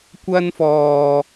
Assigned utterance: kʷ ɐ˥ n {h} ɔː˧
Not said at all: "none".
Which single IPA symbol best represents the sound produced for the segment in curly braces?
f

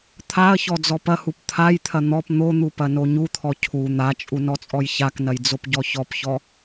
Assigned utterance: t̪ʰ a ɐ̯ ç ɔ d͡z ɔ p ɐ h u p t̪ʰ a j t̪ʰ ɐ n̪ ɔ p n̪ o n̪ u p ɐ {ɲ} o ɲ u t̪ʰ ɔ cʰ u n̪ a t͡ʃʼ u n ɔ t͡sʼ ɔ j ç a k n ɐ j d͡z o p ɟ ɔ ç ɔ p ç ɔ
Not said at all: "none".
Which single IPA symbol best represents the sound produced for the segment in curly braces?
n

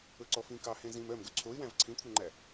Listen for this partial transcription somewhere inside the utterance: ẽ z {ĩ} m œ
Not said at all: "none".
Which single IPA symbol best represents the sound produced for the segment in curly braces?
ĩ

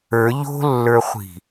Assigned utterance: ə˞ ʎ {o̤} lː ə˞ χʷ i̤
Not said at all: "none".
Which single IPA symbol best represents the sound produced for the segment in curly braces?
o̤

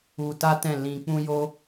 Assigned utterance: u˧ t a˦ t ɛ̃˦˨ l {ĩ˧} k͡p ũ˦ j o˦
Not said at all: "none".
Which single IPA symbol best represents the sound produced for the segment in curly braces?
ĩ˧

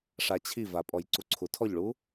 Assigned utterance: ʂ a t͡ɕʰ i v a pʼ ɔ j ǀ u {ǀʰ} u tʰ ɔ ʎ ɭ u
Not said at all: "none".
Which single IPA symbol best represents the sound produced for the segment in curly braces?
ǀʰ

